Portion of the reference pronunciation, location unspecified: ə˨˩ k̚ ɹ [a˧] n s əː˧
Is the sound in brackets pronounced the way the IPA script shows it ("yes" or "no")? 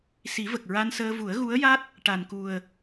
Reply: yes